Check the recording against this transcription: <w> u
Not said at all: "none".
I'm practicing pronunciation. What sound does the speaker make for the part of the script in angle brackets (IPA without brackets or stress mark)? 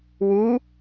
w